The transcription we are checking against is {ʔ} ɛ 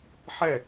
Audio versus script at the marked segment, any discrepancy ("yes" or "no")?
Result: yes